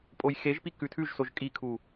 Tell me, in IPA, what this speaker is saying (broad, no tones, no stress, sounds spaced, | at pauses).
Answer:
pʼ o j x e ʒ p i k ʉ tʰ ʉ ʒ s o ʒ kʼ i kʰ u